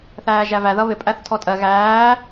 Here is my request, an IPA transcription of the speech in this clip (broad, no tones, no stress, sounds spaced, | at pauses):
θ æː ʒ æ v æ ð ʌ β ɪ pʼ æ θ tʰ ɔ tʼ ɜ ɣ æː